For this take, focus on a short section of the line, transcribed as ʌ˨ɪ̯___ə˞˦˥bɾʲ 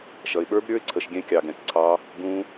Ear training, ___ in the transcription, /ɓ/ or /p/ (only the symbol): ɓ